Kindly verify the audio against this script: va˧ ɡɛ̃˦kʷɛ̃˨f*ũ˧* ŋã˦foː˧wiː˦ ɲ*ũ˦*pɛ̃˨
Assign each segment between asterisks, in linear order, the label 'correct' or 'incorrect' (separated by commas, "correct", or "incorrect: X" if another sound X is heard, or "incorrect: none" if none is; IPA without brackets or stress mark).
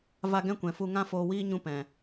incorrect: u˧, correct